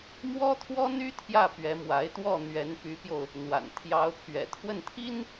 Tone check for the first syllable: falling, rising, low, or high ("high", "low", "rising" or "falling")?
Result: high